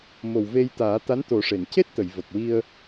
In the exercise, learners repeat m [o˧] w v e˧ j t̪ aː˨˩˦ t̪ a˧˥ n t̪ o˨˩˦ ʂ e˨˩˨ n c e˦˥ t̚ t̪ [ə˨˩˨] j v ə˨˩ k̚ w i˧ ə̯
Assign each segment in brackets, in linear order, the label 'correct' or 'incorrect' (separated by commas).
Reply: incorrect, correct